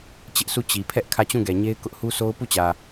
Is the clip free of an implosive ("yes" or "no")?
yes